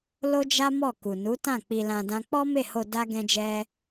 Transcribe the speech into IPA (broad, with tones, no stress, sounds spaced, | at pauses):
l o˦ d͡ʒ a˦ m ɔ˦˨ k u˨ n u˨˦ t ã˦˨ k͡p i˧ l ã˧ d ã˦ k͡p ɔ˦ m e˦˨ h o˧ d a˦ ɡ ɛ̃˦ d͡ʒ ɛ˦